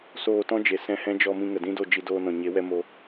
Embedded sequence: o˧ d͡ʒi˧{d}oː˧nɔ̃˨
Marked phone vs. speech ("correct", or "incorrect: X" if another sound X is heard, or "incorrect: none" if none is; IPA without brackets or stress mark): correct